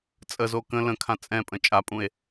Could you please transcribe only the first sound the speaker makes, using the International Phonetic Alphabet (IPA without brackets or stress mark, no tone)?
t͡sʼ